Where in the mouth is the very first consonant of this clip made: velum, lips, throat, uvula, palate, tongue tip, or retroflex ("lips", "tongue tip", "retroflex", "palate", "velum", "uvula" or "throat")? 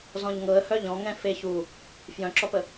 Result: tongue tip